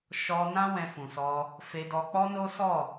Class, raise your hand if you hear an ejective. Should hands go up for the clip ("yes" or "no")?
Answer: no